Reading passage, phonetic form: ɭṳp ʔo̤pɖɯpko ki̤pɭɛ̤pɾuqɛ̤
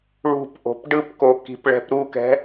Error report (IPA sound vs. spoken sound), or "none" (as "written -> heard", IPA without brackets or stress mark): q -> k